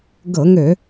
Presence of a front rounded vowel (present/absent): present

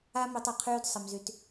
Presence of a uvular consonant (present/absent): present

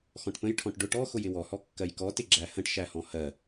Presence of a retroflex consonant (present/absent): present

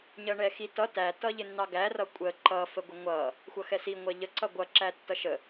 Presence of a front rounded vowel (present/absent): absent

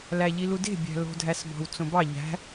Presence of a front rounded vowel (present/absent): absent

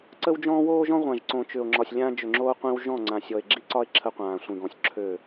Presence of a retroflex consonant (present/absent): absent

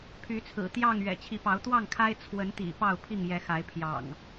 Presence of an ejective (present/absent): absent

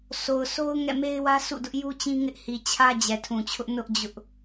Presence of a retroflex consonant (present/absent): absent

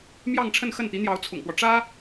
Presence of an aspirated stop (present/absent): present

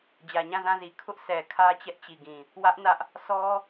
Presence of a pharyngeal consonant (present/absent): absent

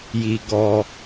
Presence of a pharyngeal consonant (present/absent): absent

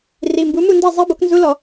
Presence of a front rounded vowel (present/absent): absent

